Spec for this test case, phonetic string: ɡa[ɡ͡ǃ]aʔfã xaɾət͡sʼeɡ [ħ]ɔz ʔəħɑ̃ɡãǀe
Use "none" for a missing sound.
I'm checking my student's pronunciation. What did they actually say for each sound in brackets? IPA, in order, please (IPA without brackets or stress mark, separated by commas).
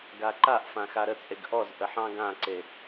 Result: ǃ, ʔ